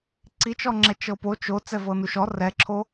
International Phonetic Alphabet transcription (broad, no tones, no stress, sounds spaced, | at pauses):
ǀ i t͡ʃ ɔ ŋ͡ǁ ɛ t͡ʃ ɤ p o t͡ʃ o t͡s ɛ v ɤ n u ʃ ɔ r ɛ ǁʰ o